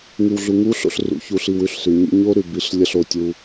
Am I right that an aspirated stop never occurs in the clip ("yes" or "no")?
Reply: yes